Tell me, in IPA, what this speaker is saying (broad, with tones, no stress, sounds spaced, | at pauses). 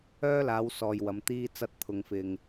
œː˥ l aː˨˧ w s ɔː˨ j w ɐ˨˧ m t̪ iː˥ t͡s ɐ˥ t̚ t̪ʰ ʊ˧ ŋ f ɪ˧ ŋ